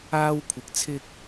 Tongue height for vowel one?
low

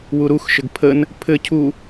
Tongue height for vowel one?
high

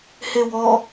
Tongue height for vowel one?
mid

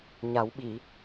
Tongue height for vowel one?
low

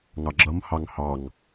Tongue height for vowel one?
low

